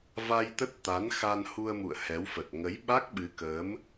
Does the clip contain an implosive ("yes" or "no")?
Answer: yes